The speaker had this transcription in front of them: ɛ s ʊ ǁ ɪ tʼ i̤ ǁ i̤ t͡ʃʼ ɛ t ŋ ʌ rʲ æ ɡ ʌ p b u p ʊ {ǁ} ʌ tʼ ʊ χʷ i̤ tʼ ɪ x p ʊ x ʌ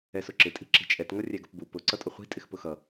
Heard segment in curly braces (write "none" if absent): ǀ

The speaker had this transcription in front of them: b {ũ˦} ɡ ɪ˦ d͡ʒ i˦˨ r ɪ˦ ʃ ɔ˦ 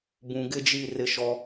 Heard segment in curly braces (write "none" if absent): ũ˨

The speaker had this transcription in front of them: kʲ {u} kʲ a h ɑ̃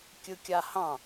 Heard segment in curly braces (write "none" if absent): ɯ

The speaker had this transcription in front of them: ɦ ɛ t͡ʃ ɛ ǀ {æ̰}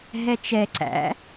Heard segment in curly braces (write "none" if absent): æ̰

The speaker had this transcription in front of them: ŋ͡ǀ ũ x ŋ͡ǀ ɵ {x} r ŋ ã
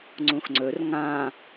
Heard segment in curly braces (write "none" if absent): none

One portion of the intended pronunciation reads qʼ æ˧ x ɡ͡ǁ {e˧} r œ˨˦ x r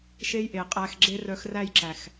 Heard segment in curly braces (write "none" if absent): e˧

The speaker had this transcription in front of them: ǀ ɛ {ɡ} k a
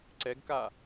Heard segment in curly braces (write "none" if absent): ɡ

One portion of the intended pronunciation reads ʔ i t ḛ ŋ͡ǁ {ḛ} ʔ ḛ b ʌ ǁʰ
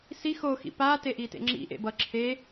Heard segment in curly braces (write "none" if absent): ḭ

